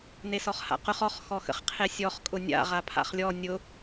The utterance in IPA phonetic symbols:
n e s ɔ χ h a̰ q ʊ χ ɔ χ x ɔ x ə̰ χ qʰ e sʲ ɔ χ kʼ ʊ nʲ a̰ ʁ a pʰ a̰ χ lʲ ɔ nʲ ʊ

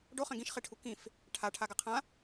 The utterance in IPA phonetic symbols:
ɖ o χ ɛ̃ ɡ ĩ ʃ χ e ʈʰ u k ĩ f | ʈʰ a ʈʰ a ɡ a qʰ ã

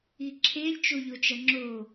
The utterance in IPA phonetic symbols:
i ǁʰ e lʲ t͡ʃ o ʎ o t͡ʃ ɐ ŋ͡ǁ o

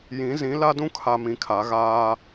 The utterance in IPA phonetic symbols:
j ĩ˨˦ z ĩ˨˦ l a˦ d ũ˦ kʰ a˨ m ĩ˨ kʰ a˨˦ ɣ aː˦

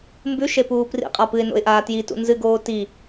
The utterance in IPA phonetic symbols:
m b ʉ ʃ e p uː p r ḭ qʼ a p ɨ ɪ̯ n o̰ ɪ̯ ʔ aː t j i t ṵ n z ɨ ɡ oː t i

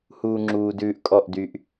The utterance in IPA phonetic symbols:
h uː˧ ŋ͡ǁ uː˨ d ʉː˧ ʔ kʼ ɔ˦˨ ʔ d y˧ ʔ

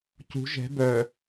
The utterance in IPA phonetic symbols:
c ṳ ʒ ɛ̤ b œ

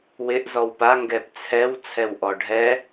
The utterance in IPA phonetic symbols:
w ɪ ʔ z ɔ w p a ŋ ɡ ɛ p t͡sʰ ɛ w t͡sʰ ɛ w ʔ ɔ ɖʱ ɛ

